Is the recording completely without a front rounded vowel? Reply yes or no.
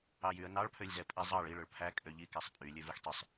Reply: no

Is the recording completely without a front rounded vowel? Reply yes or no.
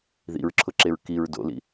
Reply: yes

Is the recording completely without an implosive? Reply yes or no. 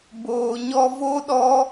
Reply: no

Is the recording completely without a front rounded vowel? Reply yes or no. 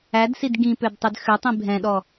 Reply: no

